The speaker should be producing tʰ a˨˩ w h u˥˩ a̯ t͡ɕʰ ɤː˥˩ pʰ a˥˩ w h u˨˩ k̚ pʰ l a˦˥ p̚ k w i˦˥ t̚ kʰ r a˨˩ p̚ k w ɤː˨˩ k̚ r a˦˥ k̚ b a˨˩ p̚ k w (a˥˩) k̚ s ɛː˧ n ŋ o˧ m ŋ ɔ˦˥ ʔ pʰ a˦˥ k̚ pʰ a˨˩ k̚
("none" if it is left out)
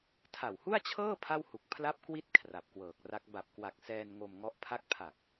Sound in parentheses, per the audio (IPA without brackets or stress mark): a˨˩